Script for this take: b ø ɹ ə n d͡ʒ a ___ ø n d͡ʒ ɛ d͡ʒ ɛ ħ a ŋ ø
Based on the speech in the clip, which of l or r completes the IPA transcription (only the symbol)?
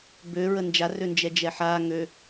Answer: r